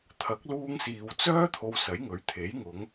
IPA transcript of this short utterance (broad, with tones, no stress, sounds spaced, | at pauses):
t̪ʰ ɐ˨˥ k̚ l uː˧ ŋ s iː˨ w t͡s œː˥ t̪ʰ o˧ w s ɐ˨˥ j ŋ ɵ˨˥ ɥ t̪ʰ e˨˥ j ŋ ʊ˨˧ ŋ